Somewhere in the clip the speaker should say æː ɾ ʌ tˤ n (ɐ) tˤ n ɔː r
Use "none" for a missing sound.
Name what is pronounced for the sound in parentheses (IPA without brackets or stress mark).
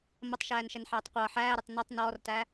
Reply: ɐ